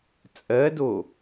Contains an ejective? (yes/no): yes